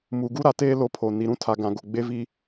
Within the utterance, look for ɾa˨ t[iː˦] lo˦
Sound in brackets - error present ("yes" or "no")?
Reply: yes